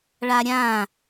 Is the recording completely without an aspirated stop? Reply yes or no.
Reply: yes